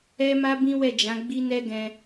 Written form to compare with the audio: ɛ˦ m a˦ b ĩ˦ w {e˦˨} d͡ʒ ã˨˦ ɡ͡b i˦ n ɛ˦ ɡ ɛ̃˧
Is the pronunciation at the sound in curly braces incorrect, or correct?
incorrect